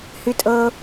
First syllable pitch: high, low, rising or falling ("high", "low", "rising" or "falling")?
high